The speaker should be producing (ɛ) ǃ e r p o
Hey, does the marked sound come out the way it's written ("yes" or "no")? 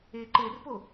no